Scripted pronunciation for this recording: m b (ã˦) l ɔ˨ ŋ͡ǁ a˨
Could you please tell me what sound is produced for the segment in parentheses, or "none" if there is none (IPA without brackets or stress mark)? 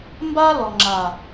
a˦